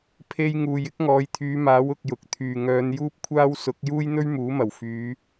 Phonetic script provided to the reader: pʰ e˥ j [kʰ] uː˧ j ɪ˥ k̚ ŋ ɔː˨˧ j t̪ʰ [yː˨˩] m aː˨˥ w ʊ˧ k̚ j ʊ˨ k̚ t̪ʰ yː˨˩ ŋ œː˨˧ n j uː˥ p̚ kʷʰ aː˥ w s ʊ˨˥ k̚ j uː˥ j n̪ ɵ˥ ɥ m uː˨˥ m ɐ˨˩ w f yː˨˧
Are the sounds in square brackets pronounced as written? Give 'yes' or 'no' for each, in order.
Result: no, no

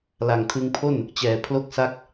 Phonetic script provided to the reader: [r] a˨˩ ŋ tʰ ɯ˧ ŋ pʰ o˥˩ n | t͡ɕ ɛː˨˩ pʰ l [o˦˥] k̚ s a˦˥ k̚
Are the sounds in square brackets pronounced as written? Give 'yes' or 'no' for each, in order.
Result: no, yes

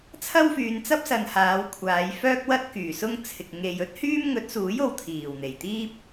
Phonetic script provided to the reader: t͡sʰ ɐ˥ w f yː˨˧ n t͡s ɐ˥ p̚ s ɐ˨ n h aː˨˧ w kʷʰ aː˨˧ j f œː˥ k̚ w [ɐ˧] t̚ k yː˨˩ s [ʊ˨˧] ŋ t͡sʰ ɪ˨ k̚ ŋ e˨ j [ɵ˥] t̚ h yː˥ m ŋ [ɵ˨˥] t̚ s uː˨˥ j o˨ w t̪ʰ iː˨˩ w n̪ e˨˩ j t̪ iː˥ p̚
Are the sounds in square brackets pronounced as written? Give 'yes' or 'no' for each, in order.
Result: no, no, yes, yes

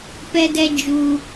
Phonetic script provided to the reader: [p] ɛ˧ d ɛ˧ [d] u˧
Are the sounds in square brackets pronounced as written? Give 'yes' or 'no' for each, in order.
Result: yes, no

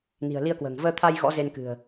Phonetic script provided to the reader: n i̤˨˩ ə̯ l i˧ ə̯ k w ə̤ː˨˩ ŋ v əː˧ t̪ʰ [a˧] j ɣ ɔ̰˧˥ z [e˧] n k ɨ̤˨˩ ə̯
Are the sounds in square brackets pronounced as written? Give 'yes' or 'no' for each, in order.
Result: yes, yes

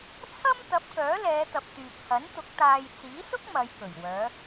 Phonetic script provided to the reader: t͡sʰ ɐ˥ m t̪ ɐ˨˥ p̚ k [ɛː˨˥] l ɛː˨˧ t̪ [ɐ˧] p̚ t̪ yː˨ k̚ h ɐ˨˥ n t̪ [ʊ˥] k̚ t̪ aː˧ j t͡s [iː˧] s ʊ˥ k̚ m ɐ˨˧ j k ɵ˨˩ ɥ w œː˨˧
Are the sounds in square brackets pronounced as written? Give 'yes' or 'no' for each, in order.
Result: no, no, no, no

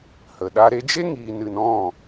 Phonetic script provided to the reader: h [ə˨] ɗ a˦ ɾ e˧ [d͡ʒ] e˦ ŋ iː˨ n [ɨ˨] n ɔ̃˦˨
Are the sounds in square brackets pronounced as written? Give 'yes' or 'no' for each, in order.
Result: yes, yes, yes

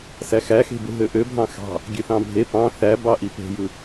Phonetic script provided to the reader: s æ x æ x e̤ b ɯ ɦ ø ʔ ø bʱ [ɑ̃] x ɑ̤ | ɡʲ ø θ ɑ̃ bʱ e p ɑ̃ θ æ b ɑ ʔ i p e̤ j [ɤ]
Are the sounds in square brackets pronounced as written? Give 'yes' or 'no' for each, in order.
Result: yes, no

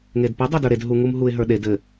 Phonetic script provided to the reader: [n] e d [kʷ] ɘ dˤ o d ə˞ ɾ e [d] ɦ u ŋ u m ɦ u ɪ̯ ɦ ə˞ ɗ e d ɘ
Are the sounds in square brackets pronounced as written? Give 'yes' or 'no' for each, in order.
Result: no, no, yes

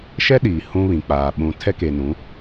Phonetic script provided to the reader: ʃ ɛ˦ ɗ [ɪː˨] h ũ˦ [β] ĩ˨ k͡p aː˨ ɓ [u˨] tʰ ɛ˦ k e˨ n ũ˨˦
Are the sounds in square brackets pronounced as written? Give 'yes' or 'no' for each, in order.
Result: no, yes, no

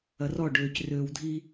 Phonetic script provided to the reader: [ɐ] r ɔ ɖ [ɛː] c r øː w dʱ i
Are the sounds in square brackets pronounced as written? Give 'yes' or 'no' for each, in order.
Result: yes, no

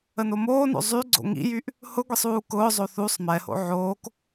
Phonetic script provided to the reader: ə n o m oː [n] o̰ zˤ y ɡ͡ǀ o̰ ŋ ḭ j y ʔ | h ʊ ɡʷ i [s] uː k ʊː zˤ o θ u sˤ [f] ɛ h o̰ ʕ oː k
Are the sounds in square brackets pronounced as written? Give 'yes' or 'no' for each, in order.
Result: yes, no, no

